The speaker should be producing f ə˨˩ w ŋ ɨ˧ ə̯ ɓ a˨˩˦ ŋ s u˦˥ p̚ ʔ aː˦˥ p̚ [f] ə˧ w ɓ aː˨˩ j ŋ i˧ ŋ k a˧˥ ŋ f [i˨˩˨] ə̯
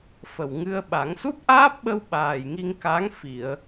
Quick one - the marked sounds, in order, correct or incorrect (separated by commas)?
incorrect, correct